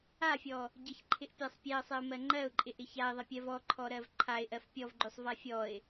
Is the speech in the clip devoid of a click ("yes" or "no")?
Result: no